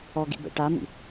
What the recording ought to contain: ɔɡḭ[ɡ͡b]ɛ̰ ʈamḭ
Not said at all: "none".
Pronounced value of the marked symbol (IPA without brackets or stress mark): b